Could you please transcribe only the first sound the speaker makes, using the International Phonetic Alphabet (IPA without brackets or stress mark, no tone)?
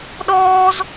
ɗ